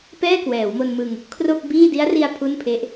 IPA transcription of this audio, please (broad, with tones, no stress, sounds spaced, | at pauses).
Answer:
p ɛː˥˩ k w ɛː˩˦ w m o˧ n m ɯ˧ ŋ | kʰ r o˥˩ k̚ b iː˥˩ d i˦˥ a̯ r i˧ a̯ pʰ u˥˩ n pʰ e˦˥ ʔ